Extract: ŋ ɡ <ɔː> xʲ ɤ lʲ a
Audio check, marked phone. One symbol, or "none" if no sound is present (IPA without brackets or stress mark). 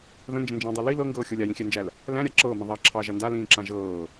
ɤː